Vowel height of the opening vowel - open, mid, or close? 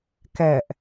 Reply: open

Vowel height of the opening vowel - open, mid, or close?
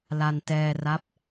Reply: open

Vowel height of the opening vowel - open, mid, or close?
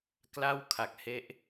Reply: open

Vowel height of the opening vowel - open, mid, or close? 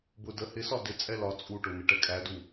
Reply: close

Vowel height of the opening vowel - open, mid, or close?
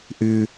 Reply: close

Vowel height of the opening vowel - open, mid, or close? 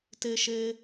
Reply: mid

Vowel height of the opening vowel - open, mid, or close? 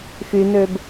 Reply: close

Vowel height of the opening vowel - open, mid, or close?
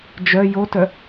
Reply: mid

